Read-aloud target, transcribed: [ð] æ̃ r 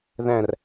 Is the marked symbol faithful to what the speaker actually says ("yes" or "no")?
yes